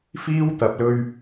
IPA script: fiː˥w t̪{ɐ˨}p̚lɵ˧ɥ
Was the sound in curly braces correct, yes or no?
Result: yes